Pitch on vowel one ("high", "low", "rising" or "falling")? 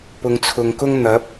low